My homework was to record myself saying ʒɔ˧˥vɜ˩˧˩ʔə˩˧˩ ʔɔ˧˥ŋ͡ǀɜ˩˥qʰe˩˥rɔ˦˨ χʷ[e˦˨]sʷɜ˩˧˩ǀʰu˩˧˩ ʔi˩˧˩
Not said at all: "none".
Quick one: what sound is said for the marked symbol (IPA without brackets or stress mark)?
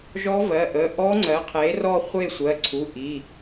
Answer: e˦˨